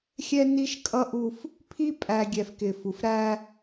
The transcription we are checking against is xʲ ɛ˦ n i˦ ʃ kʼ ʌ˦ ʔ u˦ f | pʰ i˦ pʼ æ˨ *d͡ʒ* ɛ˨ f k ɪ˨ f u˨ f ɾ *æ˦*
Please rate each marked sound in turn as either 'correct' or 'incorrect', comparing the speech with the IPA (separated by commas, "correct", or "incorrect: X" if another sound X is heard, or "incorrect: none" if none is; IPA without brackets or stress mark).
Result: incorrect: ɡʲ, correct